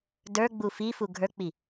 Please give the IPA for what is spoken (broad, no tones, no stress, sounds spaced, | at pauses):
d ə˞ ɡ͡b u f i f u ɡʱ ə˞ k͡p i